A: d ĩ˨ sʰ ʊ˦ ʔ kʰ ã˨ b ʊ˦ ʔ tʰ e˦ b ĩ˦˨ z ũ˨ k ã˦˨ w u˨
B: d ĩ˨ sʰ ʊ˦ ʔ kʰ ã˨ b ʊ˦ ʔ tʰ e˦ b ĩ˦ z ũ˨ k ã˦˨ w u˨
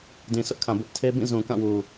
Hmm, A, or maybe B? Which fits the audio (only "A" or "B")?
A